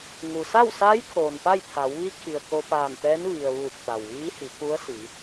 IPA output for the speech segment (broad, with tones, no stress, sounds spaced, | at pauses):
ŋ u˩ s a˥˨ w s aː˧˥ j kʰ oː˩ n p a˥˨ j t̪ʰ a˩˧ w ʋ i˧˥ kʰ i˩ ə̯ k o˧ p aː˧˩ n t̪ ɛː˧˥ n ʋ i˩ ə̯ ʋ uː˧˩ k̚ t̪ a˩ w ʋ iː˧˥ h i˩˧ k u˧˥ ə̯ s i˩˧